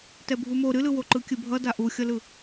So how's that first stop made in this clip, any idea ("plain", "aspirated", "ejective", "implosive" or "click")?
plain